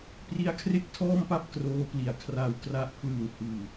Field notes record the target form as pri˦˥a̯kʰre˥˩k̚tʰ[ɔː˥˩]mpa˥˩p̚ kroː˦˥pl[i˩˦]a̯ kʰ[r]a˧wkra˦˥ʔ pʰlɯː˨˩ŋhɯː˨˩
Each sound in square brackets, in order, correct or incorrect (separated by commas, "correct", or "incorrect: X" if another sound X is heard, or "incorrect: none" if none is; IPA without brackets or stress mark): correct, incorrect: i˨˩, correct